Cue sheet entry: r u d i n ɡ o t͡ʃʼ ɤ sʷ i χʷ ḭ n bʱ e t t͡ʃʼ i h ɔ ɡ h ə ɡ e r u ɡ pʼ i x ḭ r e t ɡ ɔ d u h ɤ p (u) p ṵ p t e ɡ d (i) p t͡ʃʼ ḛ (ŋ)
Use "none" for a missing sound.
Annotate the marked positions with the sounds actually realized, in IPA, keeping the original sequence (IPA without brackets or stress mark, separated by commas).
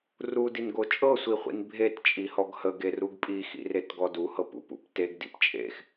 ṵ, ḭ, x